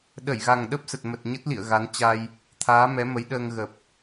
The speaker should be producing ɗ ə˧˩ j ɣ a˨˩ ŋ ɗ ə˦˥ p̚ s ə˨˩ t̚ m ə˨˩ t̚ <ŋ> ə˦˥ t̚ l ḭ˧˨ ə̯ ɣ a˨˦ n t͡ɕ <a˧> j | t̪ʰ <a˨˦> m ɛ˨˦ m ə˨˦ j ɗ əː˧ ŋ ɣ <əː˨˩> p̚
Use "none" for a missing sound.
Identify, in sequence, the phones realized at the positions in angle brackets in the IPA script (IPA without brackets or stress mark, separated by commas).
ɲ, a˧, aː˨˦, ə˨˩